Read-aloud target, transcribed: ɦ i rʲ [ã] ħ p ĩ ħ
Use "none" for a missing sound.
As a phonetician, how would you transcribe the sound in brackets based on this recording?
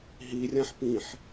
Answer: ã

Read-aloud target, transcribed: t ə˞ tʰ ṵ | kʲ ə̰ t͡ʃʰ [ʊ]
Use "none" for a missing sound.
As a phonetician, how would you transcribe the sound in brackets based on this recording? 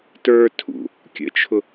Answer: ʊ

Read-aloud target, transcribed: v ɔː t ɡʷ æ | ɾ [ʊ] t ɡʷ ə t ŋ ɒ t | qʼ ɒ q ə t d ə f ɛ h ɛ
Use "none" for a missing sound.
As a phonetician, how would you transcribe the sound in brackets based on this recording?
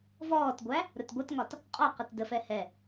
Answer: ʊ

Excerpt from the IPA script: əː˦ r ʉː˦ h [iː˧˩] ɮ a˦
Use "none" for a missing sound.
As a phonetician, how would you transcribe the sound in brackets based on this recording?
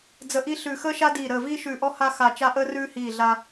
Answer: iː˧˩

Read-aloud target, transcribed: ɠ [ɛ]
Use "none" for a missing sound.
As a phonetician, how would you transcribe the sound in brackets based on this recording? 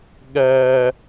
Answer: ɛ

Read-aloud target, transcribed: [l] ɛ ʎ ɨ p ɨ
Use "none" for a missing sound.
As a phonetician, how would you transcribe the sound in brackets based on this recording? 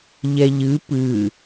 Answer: ʎ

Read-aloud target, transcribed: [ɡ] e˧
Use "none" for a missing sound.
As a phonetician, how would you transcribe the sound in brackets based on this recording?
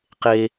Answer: q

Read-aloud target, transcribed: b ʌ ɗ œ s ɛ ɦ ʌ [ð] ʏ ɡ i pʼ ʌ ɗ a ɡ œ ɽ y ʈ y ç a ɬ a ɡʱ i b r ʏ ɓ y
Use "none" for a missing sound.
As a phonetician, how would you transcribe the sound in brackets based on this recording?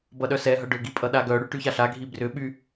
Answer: ɖ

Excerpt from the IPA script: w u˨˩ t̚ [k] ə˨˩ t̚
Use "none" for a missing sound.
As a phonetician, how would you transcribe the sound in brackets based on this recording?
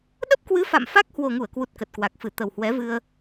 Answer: k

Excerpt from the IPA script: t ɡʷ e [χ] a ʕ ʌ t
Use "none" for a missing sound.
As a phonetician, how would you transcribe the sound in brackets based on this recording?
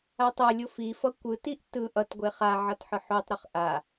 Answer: χ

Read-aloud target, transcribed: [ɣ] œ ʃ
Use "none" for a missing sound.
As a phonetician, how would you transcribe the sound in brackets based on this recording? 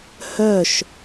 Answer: h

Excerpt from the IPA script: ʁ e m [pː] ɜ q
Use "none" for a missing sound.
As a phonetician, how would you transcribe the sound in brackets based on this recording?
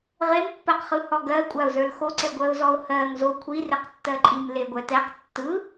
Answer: pː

